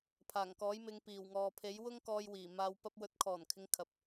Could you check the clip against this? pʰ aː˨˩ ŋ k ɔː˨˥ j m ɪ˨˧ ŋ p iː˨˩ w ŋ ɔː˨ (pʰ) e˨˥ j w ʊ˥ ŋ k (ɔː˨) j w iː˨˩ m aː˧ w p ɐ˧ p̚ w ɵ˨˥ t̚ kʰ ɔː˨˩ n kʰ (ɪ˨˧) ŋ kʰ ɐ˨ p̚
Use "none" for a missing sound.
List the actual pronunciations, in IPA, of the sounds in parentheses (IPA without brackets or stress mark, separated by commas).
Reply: pʰ, ɔː˧, ɪ˨˧